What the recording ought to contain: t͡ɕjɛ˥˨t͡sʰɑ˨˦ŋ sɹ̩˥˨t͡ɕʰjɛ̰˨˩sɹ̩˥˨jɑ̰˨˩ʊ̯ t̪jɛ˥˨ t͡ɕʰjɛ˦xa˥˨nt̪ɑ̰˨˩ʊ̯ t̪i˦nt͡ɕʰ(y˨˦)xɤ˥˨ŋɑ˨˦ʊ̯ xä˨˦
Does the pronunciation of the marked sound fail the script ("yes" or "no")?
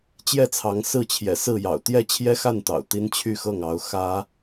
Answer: yes